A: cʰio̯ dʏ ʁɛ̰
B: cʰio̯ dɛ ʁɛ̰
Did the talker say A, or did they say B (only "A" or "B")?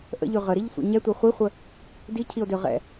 A